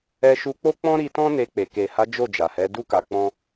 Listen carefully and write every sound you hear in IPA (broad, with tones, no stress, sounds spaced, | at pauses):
ɛ˧ ʃ u˧ k͡p o˦ k͡p ɔ̃˦ ɾ i˧ t ɔ̃˦ n e˧ k͡p e˨ k e˨ h a˨˦ d͡ʒ o˦˨ d͡ʒ a˨ h ɛ˨˦ d u˦ k a˧ k͡p ɔ̃˦